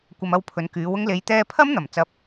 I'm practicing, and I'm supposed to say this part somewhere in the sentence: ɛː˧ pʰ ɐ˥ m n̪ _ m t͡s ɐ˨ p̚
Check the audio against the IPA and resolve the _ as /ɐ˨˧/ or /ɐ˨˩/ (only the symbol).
ɐ˨˩